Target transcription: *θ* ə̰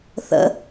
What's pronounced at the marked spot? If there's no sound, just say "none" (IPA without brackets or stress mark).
θ